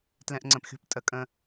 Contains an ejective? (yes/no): yes